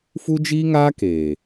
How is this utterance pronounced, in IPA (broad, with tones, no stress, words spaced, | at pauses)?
fu˦d͡ʒiː˦ŋaː˦keː˨